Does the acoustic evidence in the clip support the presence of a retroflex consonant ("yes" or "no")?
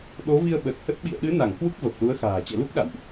no